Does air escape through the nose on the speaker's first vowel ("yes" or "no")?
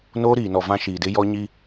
no